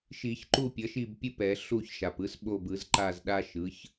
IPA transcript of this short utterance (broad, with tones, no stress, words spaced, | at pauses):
ʃi˨˩˦çǃu˦˨ pʲʌ˩˥ʃi˦˨bpʲɯ˦ pɛ˨˩˦ ɬu˦˨ç ʃa˩pɯ˩˥s ɓo˦˨bɯ˨˩˦zǃa˦˨zɗa˦ ʃɯ˩˥ç